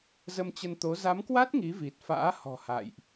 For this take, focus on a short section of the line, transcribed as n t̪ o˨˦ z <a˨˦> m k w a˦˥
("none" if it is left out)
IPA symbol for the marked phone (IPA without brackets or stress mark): a˨˦